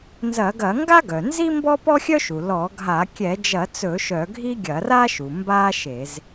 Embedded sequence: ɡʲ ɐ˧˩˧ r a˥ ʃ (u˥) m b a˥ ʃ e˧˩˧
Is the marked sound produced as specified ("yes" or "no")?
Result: no